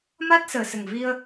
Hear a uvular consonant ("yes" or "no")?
no